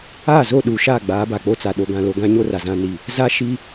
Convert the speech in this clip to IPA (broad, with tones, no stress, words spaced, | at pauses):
aː˦˨zo˦˨ ɗuː˨ʃa˦˨ ɡ͡baː˨˦ ba˨k͡po˦t͡sa˨ ɗo˨ɡã˨ lo˨ɡã˦ɲo˦ ra˨zã˦ni˦˨ | za˦ ʃi˦